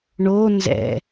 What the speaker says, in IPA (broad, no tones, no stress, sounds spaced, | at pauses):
ɳ o n z ɛ̰